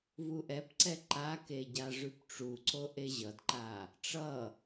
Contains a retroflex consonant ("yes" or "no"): yes